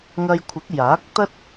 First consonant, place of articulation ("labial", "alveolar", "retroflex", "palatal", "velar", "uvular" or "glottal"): velar